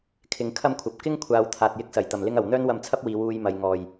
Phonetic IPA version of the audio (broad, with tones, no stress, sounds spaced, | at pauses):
kʰ ɪ˨˥ ŋ kʰ ɐ˥ m kʷʰ ɐ˨˥ p̚ k ɪ˥ ŋ kʷʰ aː˨˧ w t̪ʰ aː˨ t̚ j ɪ˧ k̚ s ɐ˨˩ j t̪ ɐ˨˩ m l ɪ˥ ŋ ɐ˨˩ w n̪ œː˥ n w ɐ˧ m t͡sʰ ɐ˥ p̚ w iː˨˧ w uː˧ j m ɐ˨ j ŋ ɔː˨˩ j